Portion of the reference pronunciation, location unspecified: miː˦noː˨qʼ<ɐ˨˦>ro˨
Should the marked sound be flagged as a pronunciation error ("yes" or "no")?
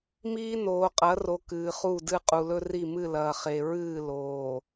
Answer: no